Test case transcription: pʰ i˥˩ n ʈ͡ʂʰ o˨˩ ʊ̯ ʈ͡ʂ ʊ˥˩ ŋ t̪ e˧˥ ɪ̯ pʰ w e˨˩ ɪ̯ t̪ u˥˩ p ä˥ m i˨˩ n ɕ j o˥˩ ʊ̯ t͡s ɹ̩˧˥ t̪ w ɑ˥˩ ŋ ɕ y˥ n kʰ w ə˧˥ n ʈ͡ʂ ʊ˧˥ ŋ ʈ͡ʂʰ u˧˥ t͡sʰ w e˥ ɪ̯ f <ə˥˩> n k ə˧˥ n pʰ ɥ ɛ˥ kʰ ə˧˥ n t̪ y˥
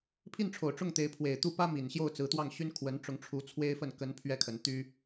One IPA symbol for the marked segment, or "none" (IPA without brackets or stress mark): ə˥˩